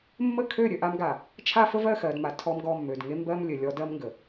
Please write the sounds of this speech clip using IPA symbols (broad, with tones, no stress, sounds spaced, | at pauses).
mː ə˦˨ kʰ ø˦˨ ɾʲ ø˨ ʔ a˦ m ɡ a˨ | t͡ʃʰ a˦ f ə˦ v ɜ˦˨ x ɜ˨ d m a˨ tʰ ɔ˦ m ɡ ɔ˦˨ mː ø˨ d ŋ e˦ m b ɜ˦ m lʲ ɘ˨ lʲ ɔ˦ d ɜ˦ m ŋ ɡ ə˨